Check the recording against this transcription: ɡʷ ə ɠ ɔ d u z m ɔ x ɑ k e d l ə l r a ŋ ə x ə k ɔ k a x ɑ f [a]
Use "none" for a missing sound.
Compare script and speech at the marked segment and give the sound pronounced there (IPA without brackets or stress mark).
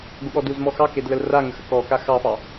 ɑ